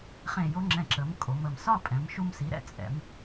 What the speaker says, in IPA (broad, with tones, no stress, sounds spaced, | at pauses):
χ ẽ˧˩ j o˧ ŋ͡ǁ ɛ̃˧˩ ǁ ə˩˧ m kʼ o˩˧ m ə˧˩ m s ɒ˥˧ pʼ ɛ̃˩˧ m ʃ u˧ m s i˩˧ ɾ ɛ̰˧ t͡sʼ ɛ̰˩˧ m